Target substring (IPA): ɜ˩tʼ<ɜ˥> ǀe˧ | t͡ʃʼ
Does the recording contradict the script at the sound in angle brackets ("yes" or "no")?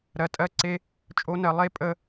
yes